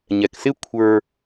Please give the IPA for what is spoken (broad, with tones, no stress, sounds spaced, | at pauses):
ɲ ɛ˩ k s ɪ˧ kʷʰ ə˞˧